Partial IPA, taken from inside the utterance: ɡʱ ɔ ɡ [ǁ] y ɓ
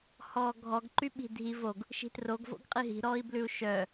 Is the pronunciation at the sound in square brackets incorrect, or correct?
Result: incorrect